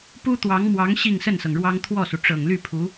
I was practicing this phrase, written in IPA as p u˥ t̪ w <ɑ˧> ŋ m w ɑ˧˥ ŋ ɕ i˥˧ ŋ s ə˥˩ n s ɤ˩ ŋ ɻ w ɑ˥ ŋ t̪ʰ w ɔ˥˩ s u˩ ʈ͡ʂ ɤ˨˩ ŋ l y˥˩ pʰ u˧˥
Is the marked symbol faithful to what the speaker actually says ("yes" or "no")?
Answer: no